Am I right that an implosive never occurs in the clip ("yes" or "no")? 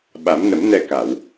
no